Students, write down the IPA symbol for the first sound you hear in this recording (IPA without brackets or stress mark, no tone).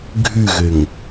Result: ɡʱ